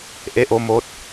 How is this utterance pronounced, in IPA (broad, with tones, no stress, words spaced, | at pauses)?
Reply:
ʔe˧˥ʔo˧mo˧˥t̚